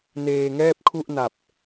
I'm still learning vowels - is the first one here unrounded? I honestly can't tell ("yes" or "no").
yes